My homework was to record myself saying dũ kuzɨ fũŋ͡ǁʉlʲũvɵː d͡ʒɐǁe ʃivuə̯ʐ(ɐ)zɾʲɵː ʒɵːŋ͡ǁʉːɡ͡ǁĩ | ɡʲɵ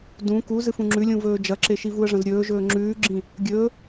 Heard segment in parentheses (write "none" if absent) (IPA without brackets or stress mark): ɐ̃